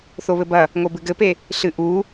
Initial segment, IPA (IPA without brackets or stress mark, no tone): θ